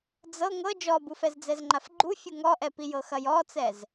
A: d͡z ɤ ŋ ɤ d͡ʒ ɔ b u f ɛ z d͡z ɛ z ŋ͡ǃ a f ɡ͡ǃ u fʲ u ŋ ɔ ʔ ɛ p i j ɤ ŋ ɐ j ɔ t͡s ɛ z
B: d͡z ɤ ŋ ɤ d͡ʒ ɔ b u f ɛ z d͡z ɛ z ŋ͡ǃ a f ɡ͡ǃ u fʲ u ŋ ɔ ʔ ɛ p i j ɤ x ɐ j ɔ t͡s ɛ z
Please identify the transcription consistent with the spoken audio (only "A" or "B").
B